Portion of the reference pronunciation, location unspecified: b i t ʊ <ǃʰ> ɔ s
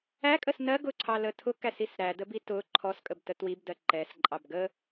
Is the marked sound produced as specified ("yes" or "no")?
yes